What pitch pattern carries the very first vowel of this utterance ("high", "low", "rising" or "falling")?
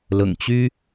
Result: low